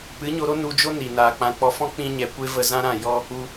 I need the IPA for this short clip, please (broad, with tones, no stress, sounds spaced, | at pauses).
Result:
p ɨ˨˦ ɲ o˧ ɾ o˦ n u˧ d͡ʒ o˦ n i˨ n aː˨ k͡p ã˧ k͡p ɔ˧ f ɔ̃˦ k͡p ĩ˧ ɲ ɛ˨ kʷ e˦ v ə˧ z ã˦ ɾ ã˦˨ j ɔ˦ | u˧